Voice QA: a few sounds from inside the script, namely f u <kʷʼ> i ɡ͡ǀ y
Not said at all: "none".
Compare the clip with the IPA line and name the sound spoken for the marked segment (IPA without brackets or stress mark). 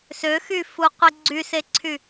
qʷ